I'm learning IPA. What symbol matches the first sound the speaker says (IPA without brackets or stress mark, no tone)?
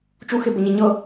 t͡ʃ